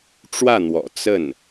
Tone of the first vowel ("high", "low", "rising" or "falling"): falling